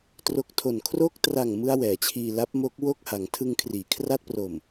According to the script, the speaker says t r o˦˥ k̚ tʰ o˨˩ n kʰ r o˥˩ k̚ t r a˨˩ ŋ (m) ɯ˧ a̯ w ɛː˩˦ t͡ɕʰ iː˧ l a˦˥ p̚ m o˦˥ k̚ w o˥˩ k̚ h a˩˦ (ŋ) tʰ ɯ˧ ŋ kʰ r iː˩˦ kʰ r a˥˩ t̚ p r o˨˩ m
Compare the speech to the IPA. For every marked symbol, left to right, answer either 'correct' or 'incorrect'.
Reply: correct, correct

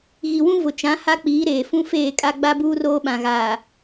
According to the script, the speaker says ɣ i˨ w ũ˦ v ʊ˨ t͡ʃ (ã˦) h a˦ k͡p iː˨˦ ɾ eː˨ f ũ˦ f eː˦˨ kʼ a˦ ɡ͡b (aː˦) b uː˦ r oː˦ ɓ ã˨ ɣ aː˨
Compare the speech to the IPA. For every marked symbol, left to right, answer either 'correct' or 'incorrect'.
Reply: incorrect, incorrect

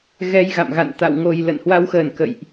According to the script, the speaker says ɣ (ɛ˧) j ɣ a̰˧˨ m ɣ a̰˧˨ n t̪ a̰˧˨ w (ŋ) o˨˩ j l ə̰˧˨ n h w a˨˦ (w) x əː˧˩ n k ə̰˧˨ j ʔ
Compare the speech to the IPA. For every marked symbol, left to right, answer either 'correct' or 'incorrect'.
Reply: correct, correct, correct

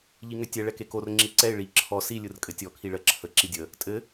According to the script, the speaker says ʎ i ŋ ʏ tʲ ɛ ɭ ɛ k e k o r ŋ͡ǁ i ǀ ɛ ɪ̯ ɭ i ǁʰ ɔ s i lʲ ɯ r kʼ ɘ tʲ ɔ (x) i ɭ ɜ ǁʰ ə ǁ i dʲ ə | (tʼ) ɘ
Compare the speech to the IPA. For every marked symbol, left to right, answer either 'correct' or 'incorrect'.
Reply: incorrect, correct

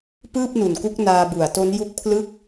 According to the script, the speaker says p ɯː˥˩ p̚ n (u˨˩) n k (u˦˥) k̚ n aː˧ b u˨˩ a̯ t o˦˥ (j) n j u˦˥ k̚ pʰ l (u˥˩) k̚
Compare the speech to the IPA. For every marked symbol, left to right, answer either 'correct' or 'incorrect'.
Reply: correct, correct, incorrect, incorrect

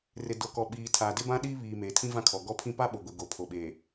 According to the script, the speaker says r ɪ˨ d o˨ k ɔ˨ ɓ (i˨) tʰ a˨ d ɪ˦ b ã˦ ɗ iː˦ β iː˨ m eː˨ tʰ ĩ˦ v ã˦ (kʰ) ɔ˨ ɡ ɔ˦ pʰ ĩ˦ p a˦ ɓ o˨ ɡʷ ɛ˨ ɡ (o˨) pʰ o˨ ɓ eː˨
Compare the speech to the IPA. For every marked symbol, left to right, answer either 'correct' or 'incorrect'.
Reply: incorrect, correct, correct

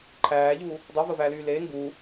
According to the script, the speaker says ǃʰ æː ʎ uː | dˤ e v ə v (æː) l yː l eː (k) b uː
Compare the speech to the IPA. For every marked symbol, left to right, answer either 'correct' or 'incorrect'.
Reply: correct, incorrect

